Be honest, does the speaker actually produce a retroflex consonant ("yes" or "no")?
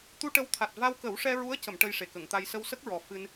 yes